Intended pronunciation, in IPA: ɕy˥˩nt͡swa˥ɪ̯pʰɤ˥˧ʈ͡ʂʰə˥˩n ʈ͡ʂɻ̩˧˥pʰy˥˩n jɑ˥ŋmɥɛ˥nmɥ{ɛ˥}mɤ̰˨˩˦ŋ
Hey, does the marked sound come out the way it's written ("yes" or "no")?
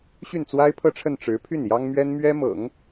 yes